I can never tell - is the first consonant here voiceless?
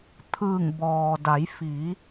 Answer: yes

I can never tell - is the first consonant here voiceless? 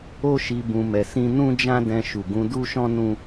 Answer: yes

